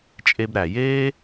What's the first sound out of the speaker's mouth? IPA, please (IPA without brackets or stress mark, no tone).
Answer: t͡ʃʼ